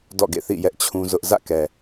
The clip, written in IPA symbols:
d ɔ̰˦˨ ɡ ḛ˦˨ θ ḭ˦˨ j ɛ˦ ʔ t͡ɕʰ ũ˦ z ʊ˦ ʔ z ä̰˦˨ k ɛ˨

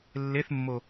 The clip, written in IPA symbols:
lː e θ mː o

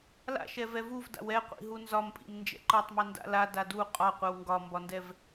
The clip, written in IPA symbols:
l a̰ ʃ ɛ v ɛ v u v d a̰ w ɛ qʷ ḭ ɦ u n z ɒ m pʼ ḭ m n d͡ʒ ɛ̰ ǃ ɤ tˤ m i n d a̰ l a d a d u qʼ ɒ qʷ ɛ w ŋ ɡ ɒ m b ɒ n d ɛ v

